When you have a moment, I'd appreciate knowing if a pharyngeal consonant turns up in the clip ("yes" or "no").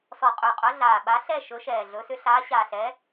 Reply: no